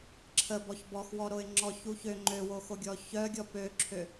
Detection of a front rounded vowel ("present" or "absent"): present